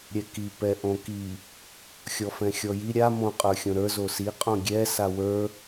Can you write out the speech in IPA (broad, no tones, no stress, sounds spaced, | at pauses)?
ɾʲ ɛ k i p ɛ ʔ õ k i | xʲ ɔ f ɛ̃ xʲ ɔ j i ɾʲ a m õ qʼ ə˞ xʲ õ ɾ ə˞ z o s i qʼ õ ɡʲ ɛ s a w ə˞